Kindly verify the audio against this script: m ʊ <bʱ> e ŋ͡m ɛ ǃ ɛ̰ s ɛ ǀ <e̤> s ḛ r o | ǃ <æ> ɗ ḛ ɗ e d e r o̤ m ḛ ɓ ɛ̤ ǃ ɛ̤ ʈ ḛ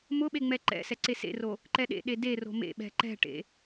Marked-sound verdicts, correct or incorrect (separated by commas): incorrect, incorrect, incorrect